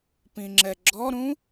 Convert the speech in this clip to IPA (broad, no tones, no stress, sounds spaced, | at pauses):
p ĩ ŋ͡ǁ ɛ ɡ͡ǁ ɔ ɾ ũ